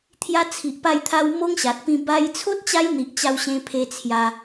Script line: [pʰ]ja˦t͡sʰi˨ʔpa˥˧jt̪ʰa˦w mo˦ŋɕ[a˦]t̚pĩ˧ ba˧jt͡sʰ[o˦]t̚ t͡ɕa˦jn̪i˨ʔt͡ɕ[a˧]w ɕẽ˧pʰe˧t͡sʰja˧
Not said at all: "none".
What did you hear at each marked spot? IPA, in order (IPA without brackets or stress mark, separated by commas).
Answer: t̪ʰ, a˨, o˦, a˧